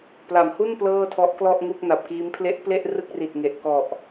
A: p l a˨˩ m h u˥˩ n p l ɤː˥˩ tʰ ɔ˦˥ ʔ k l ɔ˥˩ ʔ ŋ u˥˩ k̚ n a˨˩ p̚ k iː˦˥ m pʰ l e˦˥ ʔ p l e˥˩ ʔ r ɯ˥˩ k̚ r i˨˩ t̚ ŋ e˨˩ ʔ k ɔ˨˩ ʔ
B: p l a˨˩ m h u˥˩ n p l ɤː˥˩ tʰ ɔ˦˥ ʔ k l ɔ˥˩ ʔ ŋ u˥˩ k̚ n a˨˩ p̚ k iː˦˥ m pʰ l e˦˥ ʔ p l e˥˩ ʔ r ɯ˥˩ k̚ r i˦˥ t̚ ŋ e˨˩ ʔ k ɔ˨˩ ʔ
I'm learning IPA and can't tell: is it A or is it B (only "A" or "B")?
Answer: A